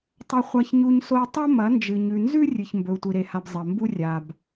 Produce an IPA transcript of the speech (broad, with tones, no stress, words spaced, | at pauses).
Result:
tˤɐ˦χʷa˦çɲu˦ɲso˦i̯ tˤɐ˦ mɐ˨˦ nd͡ʒɨ˨ɲʉ˨nzʉ˦ rʲɨ˨ç mbɵ˨u̯tʷi˨ɾe˨ha˨b zˤɐ˨mbu˦ rʲa˨b